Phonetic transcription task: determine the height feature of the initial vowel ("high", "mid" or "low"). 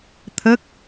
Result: mid